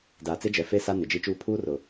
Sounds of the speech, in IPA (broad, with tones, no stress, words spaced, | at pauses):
daː˨t͡sɪ˦d͡ʒɛ˨ fe˦sa˦ nɪ˨d͡ʒi˦t͡ʃuː˦ pʰuː˦rʊ˨